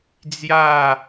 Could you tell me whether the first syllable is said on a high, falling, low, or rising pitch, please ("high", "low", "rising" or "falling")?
falling